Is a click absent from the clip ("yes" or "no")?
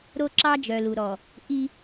no